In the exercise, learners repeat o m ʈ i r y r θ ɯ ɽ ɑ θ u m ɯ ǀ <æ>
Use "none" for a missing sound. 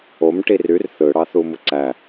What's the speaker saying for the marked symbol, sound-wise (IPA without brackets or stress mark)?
æ